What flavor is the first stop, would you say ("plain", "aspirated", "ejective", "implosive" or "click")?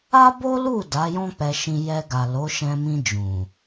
plain